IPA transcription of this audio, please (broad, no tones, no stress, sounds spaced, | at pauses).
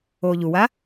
oː ʎ u w a